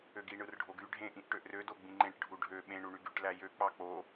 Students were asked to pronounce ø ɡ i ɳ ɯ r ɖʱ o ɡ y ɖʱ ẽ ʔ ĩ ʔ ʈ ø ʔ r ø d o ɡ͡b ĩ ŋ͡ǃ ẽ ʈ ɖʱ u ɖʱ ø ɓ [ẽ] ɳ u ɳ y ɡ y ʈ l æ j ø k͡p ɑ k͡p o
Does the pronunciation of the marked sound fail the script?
no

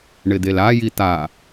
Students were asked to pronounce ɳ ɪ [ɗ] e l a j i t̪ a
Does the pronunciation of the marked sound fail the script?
yes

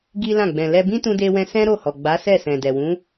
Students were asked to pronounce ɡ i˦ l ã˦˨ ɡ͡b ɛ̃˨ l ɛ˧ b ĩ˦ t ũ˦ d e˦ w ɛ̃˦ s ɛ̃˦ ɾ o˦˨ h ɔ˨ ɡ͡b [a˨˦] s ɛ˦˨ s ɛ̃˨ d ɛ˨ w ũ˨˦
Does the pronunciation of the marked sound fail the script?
no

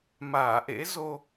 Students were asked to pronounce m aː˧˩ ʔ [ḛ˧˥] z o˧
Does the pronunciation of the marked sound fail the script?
no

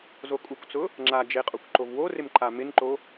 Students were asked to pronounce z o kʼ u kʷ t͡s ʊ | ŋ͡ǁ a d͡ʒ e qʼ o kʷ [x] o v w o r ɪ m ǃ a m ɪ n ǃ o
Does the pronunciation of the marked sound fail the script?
yes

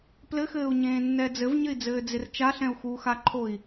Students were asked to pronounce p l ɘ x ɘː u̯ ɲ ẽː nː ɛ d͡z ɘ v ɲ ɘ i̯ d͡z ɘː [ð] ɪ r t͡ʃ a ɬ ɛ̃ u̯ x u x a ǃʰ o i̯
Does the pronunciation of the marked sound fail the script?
yes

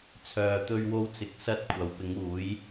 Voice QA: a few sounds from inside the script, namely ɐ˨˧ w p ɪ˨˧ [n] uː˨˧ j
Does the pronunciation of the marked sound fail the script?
yes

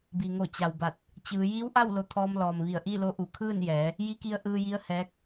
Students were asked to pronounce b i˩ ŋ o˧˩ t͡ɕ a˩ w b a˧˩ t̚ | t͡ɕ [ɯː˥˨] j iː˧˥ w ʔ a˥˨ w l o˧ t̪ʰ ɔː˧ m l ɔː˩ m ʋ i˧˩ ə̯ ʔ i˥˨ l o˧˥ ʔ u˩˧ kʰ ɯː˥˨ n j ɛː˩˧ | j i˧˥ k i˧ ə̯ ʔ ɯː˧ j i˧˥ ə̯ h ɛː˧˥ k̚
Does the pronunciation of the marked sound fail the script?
yes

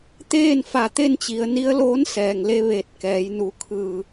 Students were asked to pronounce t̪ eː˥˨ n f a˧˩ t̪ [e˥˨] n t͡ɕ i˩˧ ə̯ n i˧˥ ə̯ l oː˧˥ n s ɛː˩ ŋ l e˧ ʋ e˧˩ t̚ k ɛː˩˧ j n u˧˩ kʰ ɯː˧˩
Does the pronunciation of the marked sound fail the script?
no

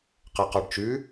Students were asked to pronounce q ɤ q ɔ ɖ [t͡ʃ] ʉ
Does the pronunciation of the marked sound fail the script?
no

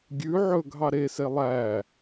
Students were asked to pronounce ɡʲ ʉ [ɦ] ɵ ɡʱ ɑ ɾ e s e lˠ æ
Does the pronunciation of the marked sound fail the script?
yes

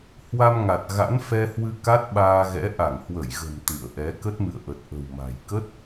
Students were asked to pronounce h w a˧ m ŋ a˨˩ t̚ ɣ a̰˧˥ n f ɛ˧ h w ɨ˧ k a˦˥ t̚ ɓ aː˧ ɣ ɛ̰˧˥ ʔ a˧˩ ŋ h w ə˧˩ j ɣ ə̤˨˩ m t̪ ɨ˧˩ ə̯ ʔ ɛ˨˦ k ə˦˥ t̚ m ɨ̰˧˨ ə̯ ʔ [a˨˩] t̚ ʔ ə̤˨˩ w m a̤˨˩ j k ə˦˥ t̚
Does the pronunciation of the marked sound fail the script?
yes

